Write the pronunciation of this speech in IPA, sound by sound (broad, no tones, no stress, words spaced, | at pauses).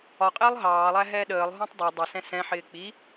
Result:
ɒqʼɪːlˠ ɦɑːlˠæɦɛː ɗəːlˠɦũtˤ dˤʌ dˤʌsɛ̃ sɛ̃ħɪː k͡pi